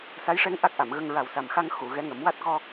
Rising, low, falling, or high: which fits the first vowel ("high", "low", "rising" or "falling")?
rising